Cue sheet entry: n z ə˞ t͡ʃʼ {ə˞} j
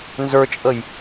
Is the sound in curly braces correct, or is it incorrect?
incorrect